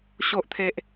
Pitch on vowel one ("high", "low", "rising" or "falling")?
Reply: low